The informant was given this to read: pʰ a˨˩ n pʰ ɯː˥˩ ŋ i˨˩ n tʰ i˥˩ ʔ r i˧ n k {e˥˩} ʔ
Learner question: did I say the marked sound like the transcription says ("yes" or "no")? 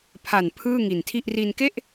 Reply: yes